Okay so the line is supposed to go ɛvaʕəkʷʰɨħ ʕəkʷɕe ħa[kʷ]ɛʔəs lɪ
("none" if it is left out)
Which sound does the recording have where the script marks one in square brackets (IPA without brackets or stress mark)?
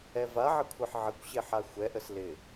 xʷ